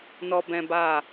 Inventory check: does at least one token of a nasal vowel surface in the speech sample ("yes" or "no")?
yes